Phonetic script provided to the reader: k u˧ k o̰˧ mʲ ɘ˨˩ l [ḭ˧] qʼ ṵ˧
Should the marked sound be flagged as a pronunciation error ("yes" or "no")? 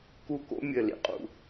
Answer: no